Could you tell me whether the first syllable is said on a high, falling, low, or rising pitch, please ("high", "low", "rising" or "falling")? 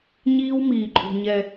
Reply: high